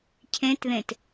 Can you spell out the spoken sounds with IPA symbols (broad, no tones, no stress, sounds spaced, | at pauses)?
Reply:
cʰ ẽ t ð ẽ t